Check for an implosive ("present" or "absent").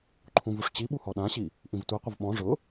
present